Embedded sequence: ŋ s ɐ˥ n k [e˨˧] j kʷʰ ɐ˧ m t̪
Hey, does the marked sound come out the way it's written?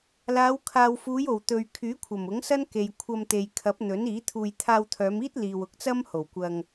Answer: no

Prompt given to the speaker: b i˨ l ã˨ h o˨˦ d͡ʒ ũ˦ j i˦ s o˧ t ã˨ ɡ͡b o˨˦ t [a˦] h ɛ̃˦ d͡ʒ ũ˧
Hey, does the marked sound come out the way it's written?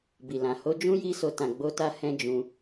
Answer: no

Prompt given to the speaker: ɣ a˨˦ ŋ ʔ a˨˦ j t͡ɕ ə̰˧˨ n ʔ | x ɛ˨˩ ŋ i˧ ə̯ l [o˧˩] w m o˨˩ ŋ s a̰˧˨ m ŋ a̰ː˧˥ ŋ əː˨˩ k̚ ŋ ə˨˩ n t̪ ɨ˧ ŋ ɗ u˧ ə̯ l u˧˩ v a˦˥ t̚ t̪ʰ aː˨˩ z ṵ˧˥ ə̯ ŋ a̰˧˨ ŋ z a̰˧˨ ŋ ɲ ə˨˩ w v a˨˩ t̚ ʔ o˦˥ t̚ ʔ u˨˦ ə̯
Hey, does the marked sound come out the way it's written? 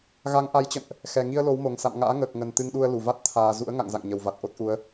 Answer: no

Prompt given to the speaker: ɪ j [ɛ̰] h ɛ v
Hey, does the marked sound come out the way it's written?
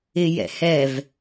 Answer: yes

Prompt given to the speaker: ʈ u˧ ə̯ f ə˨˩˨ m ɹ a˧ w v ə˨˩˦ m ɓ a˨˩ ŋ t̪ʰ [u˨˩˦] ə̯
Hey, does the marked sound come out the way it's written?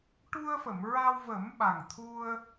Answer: no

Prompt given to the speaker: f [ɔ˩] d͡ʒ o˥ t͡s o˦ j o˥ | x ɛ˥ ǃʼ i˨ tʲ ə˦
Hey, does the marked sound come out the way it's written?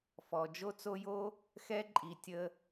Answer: yes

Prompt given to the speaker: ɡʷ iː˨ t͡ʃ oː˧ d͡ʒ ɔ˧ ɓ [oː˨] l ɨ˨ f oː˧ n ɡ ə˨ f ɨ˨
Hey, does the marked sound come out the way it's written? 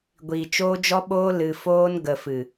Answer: no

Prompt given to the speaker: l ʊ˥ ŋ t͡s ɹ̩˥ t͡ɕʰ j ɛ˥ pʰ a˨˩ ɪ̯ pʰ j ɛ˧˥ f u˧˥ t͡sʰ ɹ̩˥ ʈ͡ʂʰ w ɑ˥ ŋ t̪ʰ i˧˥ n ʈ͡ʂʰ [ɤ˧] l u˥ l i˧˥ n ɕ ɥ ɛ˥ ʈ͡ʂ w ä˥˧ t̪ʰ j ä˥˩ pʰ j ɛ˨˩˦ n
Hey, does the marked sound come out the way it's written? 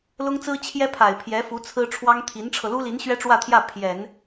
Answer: yes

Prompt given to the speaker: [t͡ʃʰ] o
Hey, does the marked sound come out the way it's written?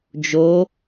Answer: no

